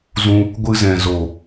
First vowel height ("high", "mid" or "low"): high